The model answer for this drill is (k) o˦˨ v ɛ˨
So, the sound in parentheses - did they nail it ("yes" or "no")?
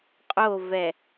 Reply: no